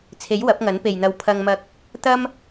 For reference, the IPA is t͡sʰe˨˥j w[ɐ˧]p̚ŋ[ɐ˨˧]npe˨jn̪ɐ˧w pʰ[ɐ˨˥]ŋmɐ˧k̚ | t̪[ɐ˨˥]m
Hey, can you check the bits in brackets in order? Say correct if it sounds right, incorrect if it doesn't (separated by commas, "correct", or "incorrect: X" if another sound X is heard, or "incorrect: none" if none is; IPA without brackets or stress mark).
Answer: incorrect: ɐ˨˥, incorrect: ɐ˨˥, incorrect: ɐ˧, incorrect: ɐ˥